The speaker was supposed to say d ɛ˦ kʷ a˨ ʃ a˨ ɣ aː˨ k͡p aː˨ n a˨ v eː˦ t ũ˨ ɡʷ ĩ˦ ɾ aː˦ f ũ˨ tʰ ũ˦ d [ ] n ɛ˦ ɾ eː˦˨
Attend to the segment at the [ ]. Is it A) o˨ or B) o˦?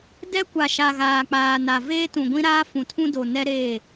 A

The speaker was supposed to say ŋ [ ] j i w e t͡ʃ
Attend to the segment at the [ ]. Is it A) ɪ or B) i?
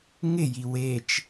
A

